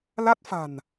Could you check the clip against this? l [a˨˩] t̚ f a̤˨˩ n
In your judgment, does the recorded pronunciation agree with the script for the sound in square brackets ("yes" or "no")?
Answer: no